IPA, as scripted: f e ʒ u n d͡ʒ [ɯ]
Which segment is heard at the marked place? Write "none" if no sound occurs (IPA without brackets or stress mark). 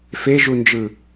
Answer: ɯ